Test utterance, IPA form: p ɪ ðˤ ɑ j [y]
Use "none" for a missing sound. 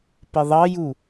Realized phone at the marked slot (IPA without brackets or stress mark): u